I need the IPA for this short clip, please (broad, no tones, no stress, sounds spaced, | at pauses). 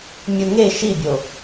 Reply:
mʲ u ŋ e ʃ i bʲ o